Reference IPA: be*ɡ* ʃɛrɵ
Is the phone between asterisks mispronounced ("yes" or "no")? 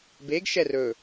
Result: no